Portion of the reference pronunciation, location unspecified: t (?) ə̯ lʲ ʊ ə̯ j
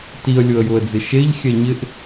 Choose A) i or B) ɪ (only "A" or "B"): A